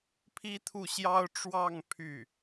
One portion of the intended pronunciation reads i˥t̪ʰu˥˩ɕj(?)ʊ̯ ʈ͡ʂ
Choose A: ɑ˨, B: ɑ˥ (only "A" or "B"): B